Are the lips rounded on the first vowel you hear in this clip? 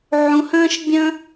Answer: yes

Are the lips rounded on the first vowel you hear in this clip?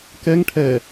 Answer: no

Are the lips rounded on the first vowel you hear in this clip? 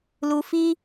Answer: yes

